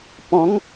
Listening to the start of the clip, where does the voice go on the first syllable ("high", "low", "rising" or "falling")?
rising